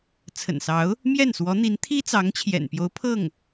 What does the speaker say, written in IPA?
t͡sʰ ə̰˨˩ n s ɑ˧˥ ʊ̯ | m j ɛ˥˩ n s w ɔ˧˥ n̪ i˧˥ n t̪ʰ i˥ t͡s ɑ˧˥ ŋ t͡ɕʰ j ɛ̰˨˩ n p j o˧˥ ʊ̯ pʰ ɤ˥˩ ŋ

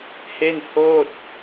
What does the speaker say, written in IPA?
h e˥˩ n h oː˥˩ t̚

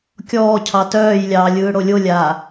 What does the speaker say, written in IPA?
kʲ ɔː cʰ ɑ t œː j lʲ ɑː lʲ ɯː ɽ o lʲ o lʲ aː

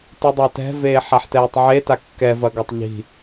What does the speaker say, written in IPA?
t ɯ dˤ a t ɛ̤ v eː ħ a ħ t ɛː tˤ ʕ e t a kː ɛ v ɐ ɡ a tˤ ʎ i̤

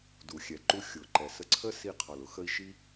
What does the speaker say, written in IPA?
d u˩ xʲ ɛ˩ ǃ u˧ xʲ ʊ˩ ǃ ɛ˩ s ə˧ ǀʰ ə˥ s i˧ qʰ ɒ˩ l ʊ˧ x ə˧ i̯ ʃ i˥

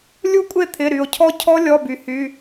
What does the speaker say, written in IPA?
lʲ u˦˥ kʷʼ e˥˩ t̪ʰ ɪ˩˧˩ ɾ y˩ o̯ cʰ ɔ˦˥ cʰ ɔ˦˥ lʲ ɔ˩˧˩ b y˩ h y˩˧˩

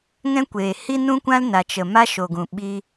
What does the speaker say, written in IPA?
ŋ ɛ̃˦ kʷ eː˨ h i˦ n ũ˦ kʷ ã˦ l n a˨ t͡ʃ ə˨ m a˦ ʃ o˨ ɡ ũ˨ ɓ i˦

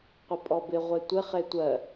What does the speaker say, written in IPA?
qʷ ɪ pʼ ɔ b ɪ ʁʷ e tʷ ɪ χ e tʷ ɜ

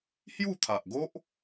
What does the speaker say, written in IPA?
h j u˥˧ t̪ʰ a˨ ʔ ɡ o˦ ʔ

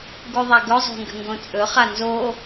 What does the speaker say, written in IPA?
ɡ u ðˤ a ɡ ɵ zˤ o̤ ŋ ɡ ə̤ ŋ ɡ õ t͡sʼ ɵ χ a n z o

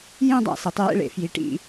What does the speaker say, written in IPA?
j ĩ˥˨ dˤ a̰˧˩ s e˩˧ tˤ j ḛ˥˨ ɭ ḛ˩˧ f j i˩˥ ʈ ḭ˩˧

